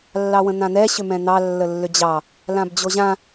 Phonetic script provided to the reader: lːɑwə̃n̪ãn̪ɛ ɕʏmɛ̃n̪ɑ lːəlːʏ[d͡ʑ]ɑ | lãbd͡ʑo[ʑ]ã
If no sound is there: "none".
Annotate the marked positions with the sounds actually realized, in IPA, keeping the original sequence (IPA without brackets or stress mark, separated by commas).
d͡ʑ, ʑ